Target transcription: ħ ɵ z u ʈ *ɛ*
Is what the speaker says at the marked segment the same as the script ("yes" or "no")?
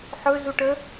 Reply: no